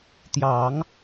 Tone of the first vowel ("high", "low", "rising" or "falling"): low